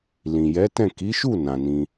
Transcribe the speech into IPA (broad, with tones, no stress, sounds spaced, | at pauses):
l ĩ˨ j ɛ˨˦ t ɛ̃˦˨ k i˨˦ ʃ u˦˨ n ã˨ n ĩ˧